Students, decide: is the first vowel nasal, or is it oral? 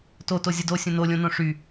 oral